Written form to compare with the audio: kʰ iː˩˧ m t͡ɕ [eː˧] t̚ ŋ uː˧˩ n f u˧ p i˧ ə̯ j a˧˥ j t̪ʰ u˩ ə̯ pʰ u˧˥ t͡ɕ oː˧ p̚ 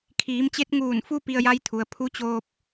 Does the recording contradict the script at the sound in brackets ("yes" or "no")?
yes